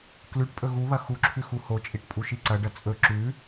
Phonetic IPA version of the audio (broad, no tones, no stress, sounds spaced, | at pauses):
k l ʉ ʈ pʼ ɵ ɣ u β ɐ x u ǁʰ ʉ x u h o t͡ʃʼ i ʈ pʼ u ʃ i ǀ ɐ ɖ ɐ t͡sʼ ɵ ǁ ʉ